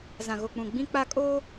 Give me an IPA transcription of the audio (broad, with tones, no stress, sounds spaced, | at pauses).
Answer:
z ã˨ ɣ o˨ k͡p ũ˨ ɡ͡b ĩ˦ k͡p a˦ kʼ oː˦